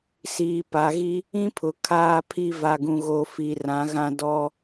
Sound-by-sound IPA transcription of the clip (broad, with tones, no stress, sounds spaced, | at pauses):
s iː˨ p a˨ ɣ i˦ | ĩ˦ pʰ ʊ˨ kʰ aː˦ pʰ i˦ v a˨ ɡ ũ˨ ɣ o˨ f i˨ r ã˨˦ ɣ ã˦ d ɔ˦